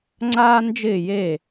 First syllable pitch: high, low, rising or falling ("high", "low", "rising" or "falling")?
high